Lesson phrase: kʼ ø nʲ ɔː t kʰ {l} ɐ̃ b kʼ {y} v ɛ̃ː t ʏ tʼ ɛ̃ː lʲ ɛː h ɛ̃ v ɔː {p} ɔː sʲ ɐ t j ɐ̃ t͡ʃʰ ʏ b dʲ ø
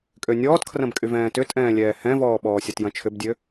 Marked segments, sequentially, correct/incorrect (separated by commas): incorrect, correct, incorrect